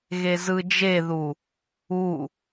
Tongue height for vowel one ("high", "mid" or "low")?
mid